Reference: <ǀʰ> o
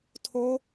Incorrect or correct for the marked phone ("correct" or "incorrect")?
incorrect